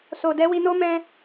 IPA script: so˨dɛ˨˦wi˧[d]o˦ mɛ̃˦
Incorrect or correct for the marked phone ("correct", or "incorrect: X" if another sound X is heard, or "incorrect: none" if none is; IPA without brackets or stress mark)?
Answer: incorrect: n